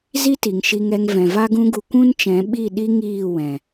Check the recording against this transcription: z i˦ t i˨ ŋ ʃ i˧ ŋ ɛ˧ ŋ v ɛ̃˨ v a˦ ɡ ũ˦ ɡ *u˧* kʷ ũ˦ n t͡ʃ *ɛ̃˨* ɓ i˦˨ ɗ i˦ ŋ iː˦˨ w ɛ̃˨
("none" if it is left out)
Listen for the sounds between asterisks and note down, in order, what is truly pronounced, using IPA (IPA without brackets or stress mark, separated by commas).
u˧, ɛ̃˨˦